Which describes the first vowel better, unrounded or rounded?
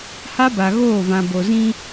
unrounded